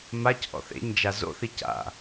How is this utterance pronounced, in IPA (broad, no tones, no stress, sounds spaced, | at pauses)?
m a c ʔ ɔ̰ θ ḛ ɲ d͡ʒ a z o̰ θ i c a̰